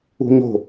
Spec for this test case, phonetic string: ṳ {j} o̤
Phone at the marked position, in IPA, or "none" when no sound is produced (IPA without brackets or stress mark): ɲ